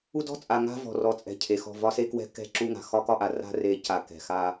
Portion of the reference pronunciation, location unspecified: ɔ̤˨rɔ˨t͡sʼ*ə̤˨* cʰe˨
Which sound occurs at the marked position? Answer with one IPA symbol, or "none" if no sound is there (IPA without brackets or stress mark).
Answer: ɛ̤˨